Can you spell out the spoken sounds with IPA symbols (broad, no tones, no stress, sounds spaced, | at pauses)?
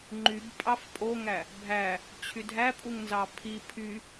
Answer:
ŋ͡ǃ y b pʼ ɑ f pʼ o ŋ æ | bʱ æ | t͡ɕʰ y dʱ æ pʼ u ŋ n z ɑ pʰ i pʰ y